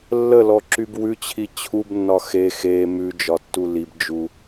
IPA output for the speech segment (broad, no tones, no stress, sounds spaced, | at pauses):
lː ə l ɔ ǁ y b w ʉ t͡ɕʰ i t͡ɕʰ u b nː ɒ x e x e m ʉ d͡ʒ ɒ tː u l i b d͡ʒ u